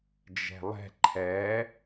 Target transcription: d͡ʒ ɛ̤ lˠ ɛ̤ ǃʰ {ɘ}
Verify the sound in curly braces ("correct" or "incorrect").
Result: incorrect